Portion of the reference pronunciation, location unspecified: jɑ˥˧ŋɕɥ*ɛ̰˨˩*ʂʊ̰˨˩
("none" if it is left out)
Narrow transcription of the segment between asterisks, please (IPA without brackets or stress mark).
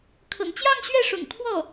ɛ˥˩